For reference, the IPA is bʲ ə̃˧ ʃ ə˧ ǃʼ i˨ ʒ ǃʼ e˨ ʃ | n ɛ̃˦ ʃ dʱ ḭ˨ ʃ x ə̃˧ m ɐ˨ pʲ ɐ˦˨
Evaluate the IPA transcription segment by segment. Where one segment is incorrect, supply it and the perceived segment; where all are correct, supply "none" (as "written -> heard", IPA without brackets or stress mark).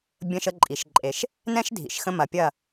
ʒ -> ʃ